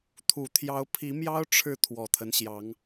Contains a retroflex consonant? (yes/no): yes